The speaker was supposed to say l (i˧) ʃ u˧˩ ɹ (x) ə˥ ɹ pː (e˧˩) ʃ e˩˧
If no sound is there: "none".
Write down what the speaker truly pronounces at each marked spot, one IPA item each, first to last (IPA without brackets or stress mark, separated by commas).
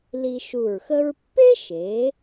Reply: i˧, x, e˥